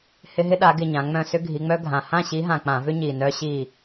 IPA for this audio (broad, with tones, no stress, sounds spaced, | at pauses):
h ɪ˦ ɦ ɪ˦ ɗ a˨˦ ɡ ɪ˦˨ ɲ ã˨˦ ŋ͡m œ̃˦˨ s ʏ˦ ɡʱ i˨˦ ŋ͡m œ˦ ɡʱ ã˨˩ h ã˦˨ ɕ i˨˦ ɦ ã˨˩ k͡p ã˧˩˧ v ʏ˦ ɲ i˨˩ n œ˦ ɕ i˦˨